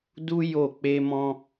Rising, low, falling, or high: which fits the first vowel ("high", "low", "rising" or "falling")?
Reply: high